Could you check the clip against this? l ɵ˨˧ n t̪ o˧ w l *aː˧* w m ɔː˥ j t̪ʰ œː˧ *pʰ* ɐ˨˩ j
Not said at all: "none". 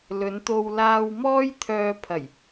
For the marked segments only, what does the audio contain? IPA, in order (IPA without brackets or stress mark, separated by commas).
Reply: aː˧, pʰ